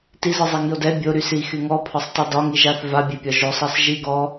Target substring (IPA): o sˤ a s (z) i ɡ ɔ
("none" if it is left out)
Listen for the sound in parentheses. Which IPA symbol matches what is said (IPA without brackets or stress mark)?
ʒ